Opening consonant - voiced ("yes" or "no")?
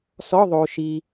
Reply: no